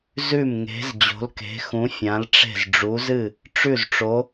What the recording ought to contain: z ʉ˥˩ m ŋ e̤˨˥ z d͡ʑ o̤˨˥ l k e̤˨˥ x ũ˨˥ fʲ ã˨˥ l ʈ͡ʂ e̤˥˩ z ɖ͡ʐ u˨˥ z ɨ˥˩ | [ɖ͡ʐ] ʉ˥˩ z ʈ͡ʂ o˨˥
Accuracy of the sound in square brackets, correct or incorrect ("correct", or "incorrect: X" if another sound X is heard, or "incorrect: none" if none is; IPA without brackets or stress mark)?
incorrect: ʈ͡ʂ